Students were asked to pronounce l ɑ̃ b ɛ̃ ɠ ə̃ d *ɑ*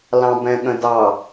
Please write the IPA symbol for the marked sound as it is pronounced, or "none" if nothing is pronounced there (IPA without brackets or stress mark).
ɑ